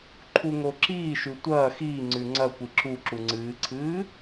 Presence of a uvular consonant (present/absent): absent